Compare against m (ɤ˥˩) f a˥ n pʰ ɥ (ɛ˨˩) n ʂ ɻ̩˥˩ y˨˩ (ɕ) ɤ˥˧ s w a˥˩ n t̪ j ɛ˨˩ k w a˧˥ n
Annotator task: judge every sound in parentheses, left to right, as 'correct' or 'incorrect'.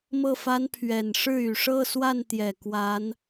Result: correct, correct, incorrect

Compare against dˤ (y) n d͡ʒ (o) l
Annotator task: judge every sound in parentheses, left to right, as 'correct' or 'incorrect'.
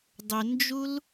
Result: incorrect, incorrect

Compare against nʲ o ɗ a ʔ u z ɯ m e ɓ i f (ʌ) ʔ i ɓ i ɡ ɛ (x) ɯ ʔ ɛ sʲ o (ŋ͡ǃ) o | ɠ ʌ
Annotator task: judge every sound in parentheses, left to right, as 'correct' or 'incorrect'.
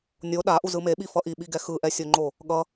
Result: correct, correct, correct

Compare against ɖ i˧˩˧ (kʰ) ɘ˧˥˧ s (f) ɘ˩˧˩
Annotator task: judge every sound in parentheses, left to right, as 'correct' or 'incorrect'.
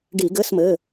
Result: incorrect, incorrect

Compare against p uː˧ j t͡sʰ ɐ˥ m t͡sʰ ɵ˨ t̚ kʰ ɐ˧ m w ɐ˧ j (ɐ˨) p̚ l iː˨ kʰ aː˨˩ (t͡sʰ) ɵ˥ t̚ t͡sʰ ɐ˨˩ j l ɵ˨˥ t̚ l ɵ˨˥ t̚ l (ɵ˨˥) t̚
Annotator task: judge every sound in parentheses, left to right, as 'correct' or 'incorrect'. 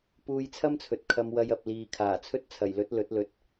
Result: correct, correct, correct

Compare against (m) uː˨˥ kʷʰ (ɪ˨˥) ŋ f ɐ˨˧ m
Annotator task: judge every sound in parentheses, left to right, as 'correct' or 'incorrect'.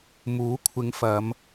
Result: correct, incorrect

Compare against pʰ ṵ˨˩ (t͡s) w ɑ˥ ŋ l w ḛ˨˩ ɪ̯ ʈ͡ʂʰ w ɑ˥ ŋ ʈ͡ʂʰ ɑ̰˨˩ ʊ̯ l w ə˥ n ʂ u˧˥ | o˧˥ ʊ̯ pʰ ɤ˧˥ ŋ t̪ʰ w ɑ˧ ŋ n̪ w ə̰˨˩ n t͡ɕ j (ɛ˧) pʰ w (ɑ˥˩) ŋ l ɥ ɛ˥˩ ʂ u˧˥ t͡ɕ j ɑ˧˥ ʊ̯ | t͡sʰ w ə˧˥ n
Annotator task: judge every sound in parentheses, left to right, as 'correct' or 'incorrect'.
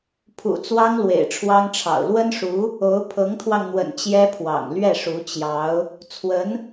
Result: correct, incorrect, incorrect

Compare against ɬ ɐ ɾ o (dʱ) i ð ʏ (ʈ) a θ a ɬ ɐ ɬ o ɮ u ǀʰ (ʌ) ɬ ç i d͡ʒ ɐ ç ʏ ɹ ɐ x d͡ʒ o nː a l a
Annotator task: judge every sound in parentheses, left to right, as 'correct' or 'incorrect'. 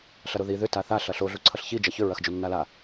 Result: incorrect, incorrect, correct

